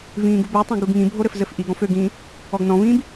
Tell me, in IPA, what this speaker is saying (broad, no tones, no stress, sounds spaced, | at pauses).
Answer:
v ĩː ɡ u b ø tˤ ũ ɡ u ɡ ŋ ĩ bʱ o ɾ ɘ f z ɘ f ʔ i ɡ ɔ̃ f ø ɡ ĩː | ɔ ɡ n ɔ̃ v ĩː b